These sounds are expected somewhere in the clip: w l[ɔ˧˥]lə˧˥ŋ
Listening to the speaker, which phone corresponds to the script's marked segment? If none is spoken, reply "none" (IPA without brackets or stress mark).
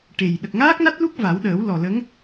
ɔ˨˩